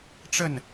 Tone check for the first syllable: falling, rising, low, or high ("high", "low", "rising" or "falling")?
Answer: falling